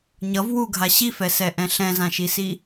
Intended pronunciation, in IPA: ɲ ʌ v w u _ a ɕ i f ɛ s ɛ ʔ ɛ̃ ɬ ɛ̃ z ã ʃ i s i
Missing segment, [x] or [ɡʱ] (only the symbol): ɡʱ